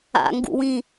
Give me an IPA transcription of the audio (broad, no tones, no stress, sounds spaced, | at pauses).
a̰ ŋ ɡ ṵ w ĩ